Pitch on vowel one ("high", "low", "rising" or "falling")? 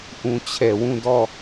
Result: low